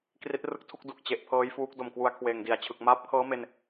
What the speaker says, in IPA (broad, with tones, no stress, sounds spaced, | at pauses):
k r i˦˥ t̚ r ɯ˦˥ k̚ tʰ u˥˩ k̚ d u˨˩ k̚ t͡ɕ e˨˩ ʔ pʰ ɤː˦˥ j f uː˦˥ k̚ d o˨˩ m k w u˧ a̯ kʰ w eː˨˩ ŋ d i˨˩ a̯ t͡ɕʰ ɯ˨˩ k̚ m aː˥˩ p̚ kʰ ɤː˦˥ m e˧ n